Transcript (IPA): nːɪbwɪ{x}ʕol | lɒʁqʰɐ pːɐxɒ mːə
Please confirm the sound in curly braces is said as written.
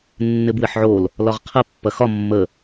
no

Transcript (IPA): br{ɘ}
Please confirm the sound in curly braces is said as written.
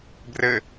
yes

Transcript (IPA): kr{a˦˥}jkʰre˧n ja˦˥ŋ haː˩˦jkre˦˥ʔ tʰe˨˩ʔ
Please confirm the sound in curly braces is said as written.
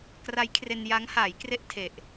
yes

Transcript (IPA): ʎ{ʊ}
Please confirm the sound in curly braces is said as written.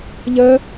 no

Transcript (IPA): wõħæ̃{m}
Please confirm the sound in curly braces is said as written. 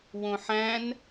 no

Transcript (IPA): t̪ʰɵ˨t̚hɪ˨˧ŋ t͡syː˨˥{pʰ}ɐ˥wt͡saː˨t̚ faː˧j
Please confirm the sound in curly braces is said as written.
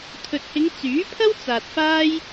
yes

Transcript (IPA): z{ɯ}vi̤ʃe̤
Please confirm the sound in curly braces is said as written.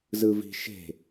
yes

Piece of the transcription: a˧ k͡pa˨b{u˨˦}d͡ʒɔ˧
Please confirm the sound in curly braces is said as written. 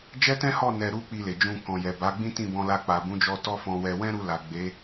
no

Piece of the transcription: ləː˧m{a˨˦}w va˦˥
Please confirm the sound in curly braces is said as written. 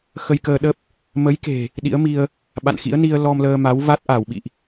yes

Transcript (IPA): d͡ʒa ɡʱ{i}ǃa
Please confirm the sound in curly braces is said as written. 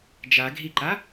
yes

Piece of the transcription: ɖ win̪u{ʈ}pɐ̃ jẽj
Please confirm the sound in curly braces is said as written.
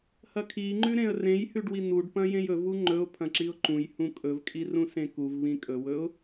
no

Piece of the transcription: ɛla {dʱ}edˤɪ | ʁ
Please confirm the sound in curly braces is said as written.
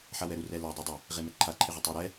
no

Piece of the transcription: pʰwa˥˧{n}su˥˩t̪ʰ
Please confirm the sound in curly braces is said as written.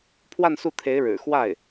yes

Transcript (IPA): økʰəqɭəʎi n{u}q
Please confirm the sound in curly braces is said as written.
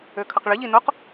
no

